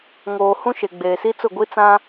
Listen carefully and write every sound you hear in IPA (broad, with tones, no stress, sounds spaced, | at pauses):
ŋ oː˨ h ũ˦ ʃ e˨ ɡ͡b eː˨ s i˦ t͡s ʊ˦˨ ɡʷ i˦ t͡s ã˦